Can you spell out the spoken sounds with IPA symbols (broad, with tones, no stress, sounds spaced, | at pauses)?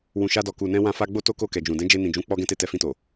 w ũ˨ ʃ a˧ d ɔ˨ k u˨ n ɛ̃˧ w ã˧ f a˧ ɡ͡b o˦ t o˦ k o˦˨ k ɛ˨ d͡ʒ ũ˨ d ɛ̃˨˦ d͡ʒ e˧ n ĩ˨ d͡ʒ ũ˨˦ k͡p ɔ˦ ɡ ɛ̃˦ t e˦˨ t ɛ˧ f ĩ˧ t o˨